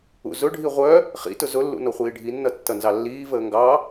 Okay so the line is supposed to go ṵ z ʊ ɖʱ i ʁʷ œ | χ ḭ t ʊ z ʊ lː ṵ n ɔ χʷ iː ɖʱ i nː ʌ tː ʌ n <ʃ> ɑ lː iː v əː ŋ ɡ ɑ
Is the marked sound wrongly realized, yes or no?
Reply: yes